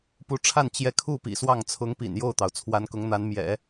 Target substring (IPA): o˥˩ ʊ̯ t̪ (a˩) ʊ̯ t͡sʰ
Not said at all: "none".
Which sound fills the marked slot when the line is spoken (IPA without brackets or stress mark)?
ɑ˩